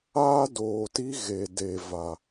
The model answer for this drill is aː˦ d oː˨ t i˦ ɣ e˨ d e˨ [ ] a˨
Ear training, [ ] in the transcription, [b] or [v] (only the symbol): v